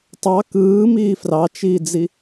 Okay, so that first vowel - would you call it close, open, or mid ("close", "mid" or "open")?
open